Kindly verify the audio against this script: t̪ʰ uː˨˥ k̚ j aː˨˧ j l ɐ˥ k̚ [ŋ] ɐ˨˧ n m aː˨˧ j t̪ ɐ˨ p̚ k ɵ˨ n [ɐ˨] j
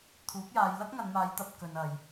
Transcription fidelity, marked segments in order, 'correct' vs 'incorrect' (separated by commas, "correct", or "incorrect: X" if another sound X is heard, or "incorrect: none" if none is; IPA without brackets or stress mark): correct, correct